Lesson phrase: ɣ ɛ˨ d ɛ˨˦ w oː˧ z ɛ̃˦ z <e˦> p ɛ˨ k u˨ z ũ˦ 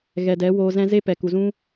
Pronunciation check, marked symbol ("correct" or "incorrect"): correct